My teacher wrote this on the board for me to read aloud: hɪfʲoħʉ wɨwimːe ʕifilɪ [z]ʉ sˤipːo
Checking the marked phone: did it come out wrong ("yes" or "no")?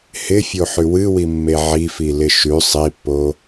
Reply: yes